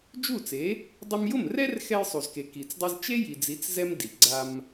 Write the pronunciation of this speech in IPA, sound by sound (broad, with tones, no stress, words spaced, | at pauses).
d͡ʒu˥˩t͡se˩˥ | dˤʊ˧mjʊ˥˩mrɛ˥r xɛ˧jsˤu˩zke˩ ki˩t͡sdˤi˧z t͡ʃe˥ji˩d͡zi˩˥t͡s zɛ˥mdi˩ ɡ͡ǀa˧m